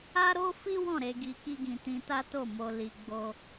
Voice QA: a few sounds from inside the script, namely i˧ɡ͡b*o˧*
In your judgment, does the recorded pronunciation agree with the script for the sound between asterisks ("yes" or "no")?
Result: no